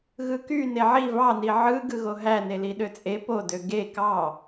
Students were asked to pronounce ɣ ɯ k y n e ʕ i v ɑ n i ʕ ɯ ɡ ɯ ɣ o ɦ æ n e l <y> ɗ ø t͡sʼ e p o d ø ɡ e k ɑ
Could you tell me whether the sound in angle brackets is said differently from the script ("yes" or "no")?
yes